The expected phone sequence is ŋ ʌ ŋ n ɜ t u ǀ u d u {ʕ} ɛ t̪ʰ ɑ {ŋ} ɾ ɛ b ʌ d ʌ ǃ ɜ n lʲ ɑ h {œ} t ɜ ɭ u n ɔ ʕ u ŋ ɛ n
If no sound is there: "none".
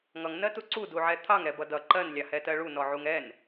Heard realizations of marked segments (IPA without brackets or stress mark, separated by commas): ʕ, ŋ, ɛ